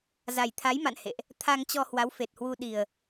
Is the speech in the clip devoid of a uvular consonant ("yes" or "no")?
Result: yes